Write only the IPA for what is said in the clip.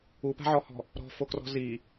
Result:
upa̤ʕɔhɔ̤ | ɾɔ̤fokrɔ̤ zi

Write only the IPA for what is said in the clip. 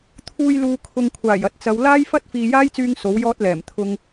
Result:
t̪ʰuː˧jluː˨kʰʊ˨ŋkʷʰaː˨˩j ɐ˨˥t̚t͡sɐ˨˧w laː˥jfɐ˥t̚ fiː˨jaː˥jt͡syː˧ŋ so˨˥wjɔː˥t̚lɛː˨˩m t̪ʰʊ˧ŋ

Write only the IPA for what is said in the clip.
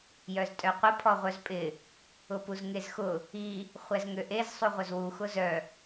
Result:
jœztʼœqʷə pʰɔʁʷœzpʼɪ | ʊpuzŋezxʊ | i | χʷɛzŋøʔez sˤuʁʷœzwu xʊzœ

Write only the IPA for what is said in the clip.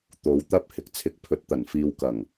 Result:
t̪o˨˧wt̪ɐ˥p̚ hɪ˨k̚t͡sʰɪ˨˥k̚pʰɵ˨t̚t̪ɐ˨˩n fiː˨wkɐ˨˩ŋ

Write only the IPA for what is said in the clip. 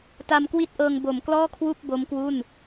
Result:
ta˧mkwi˥˩t̚ʔɤː˧ŋ bo˩˦mklɔː˥˩kʰwu˥˩k̚ bo˦˥mkwu˥˩n

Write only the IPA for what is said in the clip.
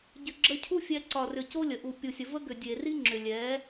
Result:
ɟʏ˨ɡ͡ǁə˧cʰu˦ fʲɛ˧ ǀɒ˨rʏ˨ co˦lʲə˨ʔu˨ pʲu˨sʲə˨və˦ɡʏ˨ dʲe˨ri˦ŋ͡ǁʏ˨ lʲɛ˨˦

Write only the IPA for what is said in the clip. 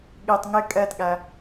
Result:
ɠitˤ ŋɪ kʼɛtɠæ

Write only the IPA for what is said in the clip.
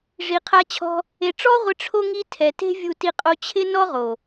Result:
ʐi˨qʰa˧t͡ɕʰɔ̤˧ | e˧ ʈ͡ʂɔ˦ʁʷɪ˧ ʈ͡ʂʰo˦ŋi˦ tʰɛ˨ te̤˦vʲu˧ti˧ qʼo˧t͡ɕʰɪ˦ nɔ˦ʁo˨

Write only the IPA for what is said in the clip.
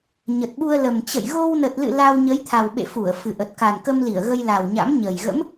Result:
ɲə˨˩t̚ɓu˧ə̯lə˨˩m t͡ɕə̰˧˨j ɣo˧wnə˨˩t̚lɨ̰˧˨ la˧wɲə˨˦jt̪ʰa˨˩wɓḛ˧˨ fu˧˩ə̯fɨ˨˩ ʔə˨˩t̚ka˨˩nkə˧mli˧˩ə̯ ɣə˧jla˨˩w ɲa̰˧˥mɲə˨˩j ɣə̰˧˥m

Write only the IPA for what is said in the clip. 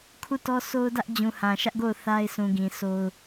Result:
kʰu˦˨tɔ˦ so˦ʊ̯dä˦ʔ d͡ʑũ˨hã˨ʃä˦ʔɡo˦˨ʊ̯ θa˦ɪ̯sʰũ˨ ɡĩ˨sʰo˦ʊ̯

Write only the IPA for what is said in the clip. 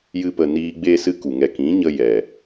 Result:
jɨ˧pə˨niː˧ ɡ͡beː˦sɨ˦ku˨ ŋɛ˨kĩ˨˦ɲə˧ jɛ˨

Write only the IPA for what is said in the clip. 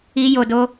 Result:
i˦jo˧do˦

